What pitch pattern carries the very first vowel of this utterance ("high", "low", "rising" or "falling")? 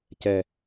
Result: low